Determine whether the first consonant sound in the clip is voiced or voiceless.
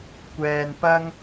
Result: voiceless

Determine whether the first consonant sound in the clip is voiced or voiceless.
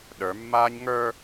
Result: voiced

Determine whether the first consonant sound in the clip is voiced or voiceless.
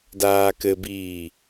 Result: voiced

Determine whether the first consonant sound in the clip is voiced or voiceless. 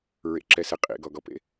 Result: voiced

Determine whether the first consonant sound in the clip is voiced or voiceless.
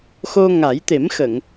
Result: voiceless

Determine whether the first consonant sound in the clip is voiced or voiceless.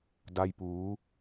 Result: voiced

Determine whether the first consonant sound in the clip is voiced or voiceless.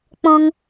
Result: voiceless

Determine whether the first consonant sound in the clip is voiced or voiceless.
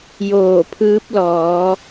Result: voiced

